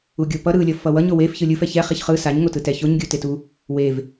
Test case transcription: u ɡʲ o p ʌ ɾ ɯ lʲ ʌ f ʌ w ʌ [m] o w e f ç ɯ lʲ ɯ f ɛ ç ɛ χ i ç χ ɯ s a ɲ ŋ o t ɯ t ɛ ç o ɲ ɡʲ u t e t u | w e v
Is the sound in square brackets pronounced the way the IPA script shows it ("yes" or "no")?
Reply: no